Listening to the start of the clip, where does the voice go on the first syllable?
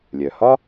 low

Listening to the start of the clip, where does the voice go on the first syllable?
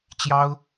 high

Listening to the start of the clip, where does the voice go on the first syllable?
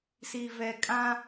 low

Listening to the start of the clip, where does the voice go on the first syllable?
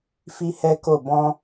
high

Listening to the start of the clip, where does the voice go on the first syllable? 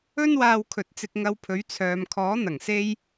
high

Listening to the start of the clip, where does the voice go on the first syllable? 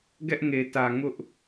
high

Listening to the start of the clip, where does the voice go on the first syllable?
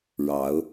rising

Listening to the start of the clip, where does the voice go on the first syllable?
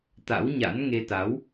rising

